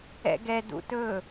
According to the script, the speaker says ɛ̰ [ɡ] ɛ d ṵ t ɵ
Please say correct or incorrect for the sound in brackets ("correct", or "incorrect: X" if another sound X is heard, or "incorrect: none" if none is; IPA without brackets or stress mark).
correct